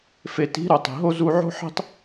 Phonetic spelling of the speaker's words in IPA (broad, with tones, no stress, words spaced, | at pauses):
fe˨ti̤˨˦ ɾo˨tˤi̤˨ɦo˦ zu˧ʕo̤˦ħi̤˦tˤ